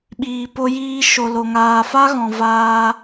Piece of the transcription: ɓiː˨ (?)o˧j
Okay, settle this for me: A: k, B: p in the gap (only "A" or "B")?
B